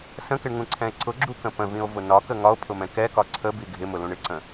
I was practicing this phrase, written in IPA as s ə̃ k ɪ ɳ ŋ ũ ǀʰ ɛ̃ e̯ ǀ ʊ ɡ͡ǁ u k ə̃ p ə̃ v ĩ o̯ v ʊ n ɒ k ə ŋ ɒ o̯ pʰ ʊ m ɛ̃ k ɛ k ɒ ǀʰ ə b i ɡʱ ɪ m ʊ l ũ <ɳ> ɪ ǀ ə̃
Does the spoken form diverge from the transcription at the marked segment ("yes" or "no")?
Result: no